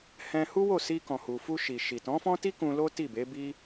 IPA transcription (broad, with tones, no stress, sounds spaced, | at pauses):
h ɛ̃˧ h u˦ w o˦˨ s i˧ k ɔ̃˨ h u˨ f u˧ ʃ i˨ ʃ i˨ t ɔ̃˨˦ f ɔ̃˦ t i˦ k ũ˧ l o˦ t i˦˨ b e˨˦ b i˦